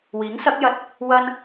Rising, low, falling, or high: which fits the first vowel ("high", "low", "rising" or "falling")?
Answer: rising